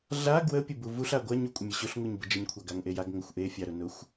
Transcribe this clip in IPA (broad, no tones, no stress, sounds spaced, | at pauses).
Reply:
ɮ a ɡ w ə pʲ ə b u v u ɬ a ɡʷ a ɲ u kʷʼ ə mʲ ə ɕ ʊ ɬ ŋ u ɲ b ə d͡ʒ ə ɲ kʷʰ a ɡ a ŋ ʔ e j a ɡ ŋ ə xʷ ʔ e fʲ a ɾ ʊ n ʊ xʷ